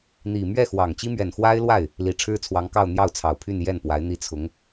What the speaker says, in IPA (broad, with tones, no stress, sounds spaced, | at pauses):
n̪ i˨˩ m ɥ ɛ˥˩ x w ɑ˨˩ ŋ t͡ɕ i˥ m ɥ ɛ˨˩ n x w a˥ ɪ̯ l w a˥˩ ɪ̯ | l i˨˩ ʈ͡ʂʰ ɻ̩˥ t͡sʰ w ɑ˧˥ ŋ k ɑ˥˧ ʊ̯ n̪ j ɑ˥˩ ʊ̯ t͡sʰ ɑ˨˩ ʊ̯ pʰ y˥˧ n j ɛ˥˩ n p w a˧˥ ɪ̯ n̪ i˥˩ t͡sʰ ʊ˧˥ ŋ